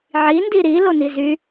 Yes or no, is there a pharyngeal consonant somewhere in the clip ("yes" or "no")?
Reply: yes